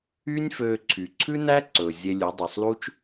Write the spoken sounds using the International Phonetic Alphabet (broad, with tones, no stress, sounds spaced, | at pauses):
yː˦ nʲ f øː˧ ǀʰ y˨ ǀʰ ʉ˦ n æ˦ ǀ ɵ˨ zʲ e˧ lʲ ʉ˨˦ dˤ o˨ sˤ l u˦ t͡ʃ